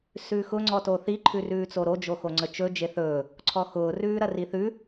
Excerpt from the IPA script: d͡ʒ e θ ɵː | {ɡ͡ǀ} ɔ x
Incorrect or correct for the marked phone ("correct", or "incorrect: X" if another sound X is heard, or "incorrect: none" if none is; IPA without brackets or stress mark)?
incorrect: ǀʰ